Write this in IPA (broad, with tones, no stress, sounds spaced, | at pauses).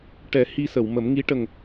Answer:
ʈ ɛ˨˩˦ h i˧ s ə˨˩˨ w m ə˨˩˦ m ŋ i˧˥ ʈ ə˨˩ ŋ